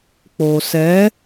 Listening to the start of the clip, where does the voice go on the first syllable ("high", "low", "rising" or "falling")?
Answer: low